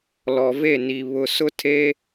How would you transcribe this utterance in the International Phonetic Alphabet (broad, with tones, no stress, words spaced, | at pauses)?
lɔ˨ve˦˨ ni˨ βʊ˨sʊ˦tʰe˦